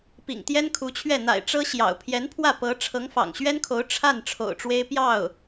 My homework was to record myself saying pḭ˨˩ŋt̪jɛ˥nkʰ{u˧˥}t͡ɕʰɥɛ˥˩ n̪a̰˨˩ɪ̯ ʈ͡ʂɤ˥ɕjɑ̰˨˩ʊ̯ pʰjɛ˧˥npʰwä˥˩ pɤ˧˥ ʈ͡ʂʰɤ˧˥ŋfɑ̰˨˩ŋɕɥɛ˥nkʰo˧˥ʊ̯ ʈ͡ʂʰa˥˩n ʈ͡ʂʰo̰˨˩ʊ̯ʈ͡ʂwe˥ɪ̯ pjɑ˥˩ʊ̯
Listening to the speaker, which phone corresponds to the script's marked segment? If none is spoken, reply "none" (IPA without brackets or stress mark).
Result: u˧˥